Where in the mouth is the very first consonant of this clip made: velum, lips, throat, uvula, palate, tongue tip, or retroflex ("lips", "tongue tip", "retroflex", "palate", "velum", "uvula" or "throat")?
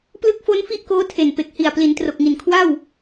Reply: lips